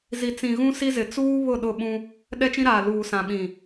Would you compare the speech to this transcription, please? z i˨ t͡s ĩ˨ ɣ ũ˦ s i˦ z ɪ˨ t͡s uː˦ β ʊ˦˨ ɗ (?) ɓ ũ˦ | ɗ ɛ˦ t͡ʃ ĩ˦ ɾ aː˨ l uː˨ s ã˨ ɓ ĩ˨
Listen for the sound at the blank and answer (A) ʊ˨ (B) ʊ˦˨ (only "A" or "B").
B